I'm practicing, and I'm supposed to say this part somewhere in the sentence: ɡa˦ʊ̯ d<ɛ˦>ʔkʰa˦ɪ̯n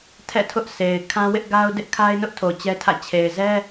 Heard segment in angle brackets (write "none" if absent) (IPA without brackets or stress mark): ɪ˦